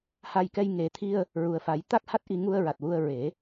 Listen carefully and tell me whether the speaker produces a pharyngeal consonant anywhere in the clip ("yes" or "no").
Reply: no